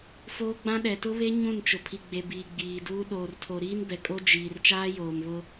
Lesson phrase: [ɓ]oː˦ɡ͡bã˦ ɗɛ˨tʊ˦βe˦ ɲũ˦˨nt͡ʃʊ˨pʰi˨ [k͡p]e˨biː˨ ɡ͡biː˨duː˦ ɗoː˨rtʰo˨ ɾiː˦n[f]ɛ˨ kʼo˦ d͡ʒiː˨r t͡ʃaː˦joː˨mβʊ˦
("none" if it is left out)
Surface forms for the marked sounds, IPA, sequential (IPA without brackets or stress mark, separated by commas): f, ɡ͡b, b